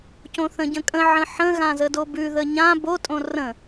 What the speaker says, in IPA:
cõθə̃ɟə̃kʼə̃ ʕə̃ħə̃ ɣãzədobʉ ðəɲã bo tʼõrə̃

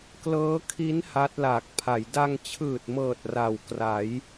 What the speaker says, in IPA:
klɤː˦˥kʰi˦˥n ha˦˥t̚laː˨˩k̚pʰa˩˦j da˧ŋt͡ɕʰɯː˨˩t̚mɤː˨˩t̚ ra˨˩w kra˩˦j

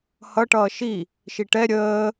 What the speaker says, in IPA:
hʌʈʌː ʃi | ʃiʈɛ ɾʲəː

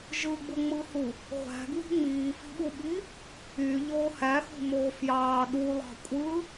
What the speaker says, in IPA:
ʒɯɡ͡buŋ͡mɯhu | ʁʷæ̤ɡwi̤ ŋ͡miːfi̤ɓuɓi | yʎoː hæxṳmoː fjɑː ɗulˠɑ̤ kʷʼɯ

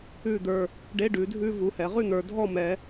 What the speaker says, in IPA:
ʉ˥˨d̪ə˞˩˧˩ | ɖe˧˥˧ɖʉ˩˧dʱʉ˥˨ vu˩˧hɛ˩˧ʁʉ˥˨ n̪ə˞˩˧dʱɔ˥˨mɛ˩˧

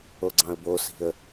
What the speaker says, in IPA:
oɡ͡ǀɑ̃ə̯bosi̤ə̯

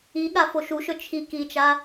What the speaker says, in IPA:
iɠa foʃuʃɵ t͡ʃʰi kit͡ʃa

